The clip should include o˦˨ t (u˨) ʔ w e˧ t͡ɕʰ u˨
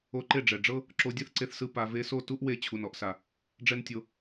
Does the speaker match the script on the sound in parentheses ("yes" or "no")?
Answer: no